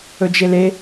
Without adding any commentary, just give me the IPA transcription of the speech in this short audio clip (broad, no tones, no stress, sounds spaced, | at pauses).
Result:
ɵ d͡ʒ e l e